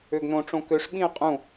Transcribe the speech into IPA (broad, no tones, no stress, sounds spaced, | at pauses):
ø ɡ n õ ʈ͡ʂ õ k ø ʂ ɓ ĩ ə̯ qʼ ũ